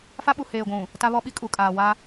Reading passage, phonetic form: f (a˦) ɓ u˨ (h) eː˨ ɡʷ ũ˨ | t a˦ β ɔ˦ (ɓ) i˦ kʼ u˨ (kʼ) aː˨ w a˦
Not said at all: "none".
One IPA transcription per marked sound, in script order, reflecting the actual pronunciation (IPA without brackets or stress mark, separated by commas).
a˦, h, ɓ, kʼ